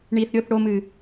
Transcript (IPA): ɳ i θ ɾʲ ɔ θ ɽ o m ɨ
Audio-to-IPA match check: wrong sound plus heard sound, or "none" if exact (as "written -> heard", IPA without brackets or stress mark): ɔ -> o